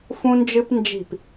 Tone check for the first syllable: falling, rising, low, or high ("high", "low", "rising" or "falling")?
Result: high